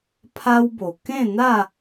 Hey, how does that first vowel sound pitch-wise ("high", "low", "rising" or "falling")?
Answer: high